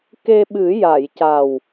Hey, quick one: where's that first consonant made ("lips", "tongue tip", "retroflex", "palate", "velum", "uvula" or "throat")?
velum